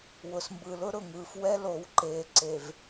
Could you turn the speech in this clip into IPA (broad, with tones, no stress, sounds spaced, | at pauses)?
w ʊ˨ s m b ɯ˨ l ʊ˦ ɾ ʊ˨ ŋ ɯː˨ f w ɛ˦ l o˨˦ w ǃ eː˨ ǀ e˨ v